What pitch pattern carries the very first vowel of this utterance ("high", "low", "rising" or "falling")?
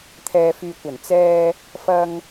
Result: low